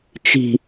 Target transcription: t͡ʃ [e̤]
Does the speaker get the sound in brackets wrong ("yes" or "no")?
yes